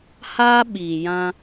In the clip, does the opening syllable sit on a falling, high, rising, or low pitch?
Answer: high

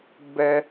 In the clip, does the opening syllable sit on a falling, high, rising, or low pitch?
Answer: high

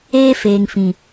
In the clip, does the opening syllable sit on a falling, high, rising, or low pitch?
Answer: high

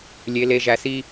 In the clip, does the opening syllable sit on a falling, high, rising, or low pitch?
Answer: low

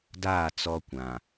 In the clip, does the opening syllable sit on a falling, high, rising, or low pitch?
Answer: falling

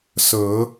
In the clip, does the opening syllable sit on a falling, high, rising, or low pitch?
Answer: low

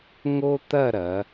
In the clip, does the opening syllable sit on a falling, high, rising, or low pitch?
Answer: high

